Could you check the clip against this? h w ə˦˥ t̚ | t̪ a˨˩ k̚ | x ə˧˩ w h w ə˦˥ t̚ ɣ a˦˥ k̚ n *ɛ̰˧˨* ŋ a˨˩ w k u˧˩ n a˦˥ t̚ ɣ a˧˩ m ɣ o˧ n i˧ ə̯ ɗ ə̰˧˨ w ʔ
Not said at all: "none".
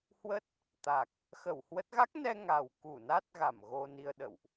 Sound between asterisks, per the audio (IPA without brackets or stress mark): ɛ˧